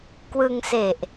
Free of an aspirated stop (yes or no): yes